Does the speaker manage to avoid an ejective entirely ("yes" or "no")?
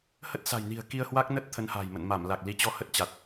yes